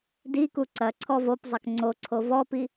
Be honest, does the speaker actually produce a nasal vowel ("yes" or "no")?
no